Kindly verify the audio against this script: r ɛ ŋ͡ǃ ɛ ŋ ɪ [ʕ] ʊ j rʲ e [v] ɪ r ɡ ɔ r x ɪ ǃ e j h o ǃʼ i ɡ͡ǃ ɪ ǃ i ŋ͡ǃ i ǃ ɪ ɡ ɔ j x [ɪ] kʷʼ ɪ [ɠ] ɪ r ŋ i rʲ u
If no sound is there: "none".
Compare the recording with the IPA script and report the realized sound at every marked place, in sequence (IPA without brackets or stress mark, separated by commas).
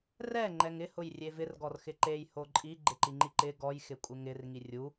h, v, ɪ, ŋ